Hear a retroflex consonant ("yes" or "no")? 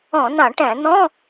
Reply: yes